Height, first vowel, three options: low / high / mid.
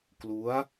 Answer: high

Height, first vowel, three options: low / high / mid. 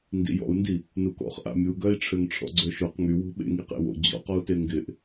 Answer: high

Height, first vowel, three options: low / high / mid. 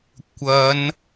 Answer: low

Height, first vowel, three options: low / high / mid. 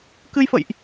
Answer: high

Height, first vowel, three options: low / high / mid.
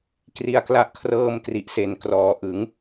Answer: high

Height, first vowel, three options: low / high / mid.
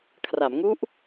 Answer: low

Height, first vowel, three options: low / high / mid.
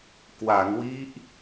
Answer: low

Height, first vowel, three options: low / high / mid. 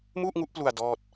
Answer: high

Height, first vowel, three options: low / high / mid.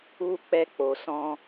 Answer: high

